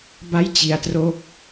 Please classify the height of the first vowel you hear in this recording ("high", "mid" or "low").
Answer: low